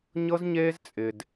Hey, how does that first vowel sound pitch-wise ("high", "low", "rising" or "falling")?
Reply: high